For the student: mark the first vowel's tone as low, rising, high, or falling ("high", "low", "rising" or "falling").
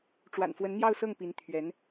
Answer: low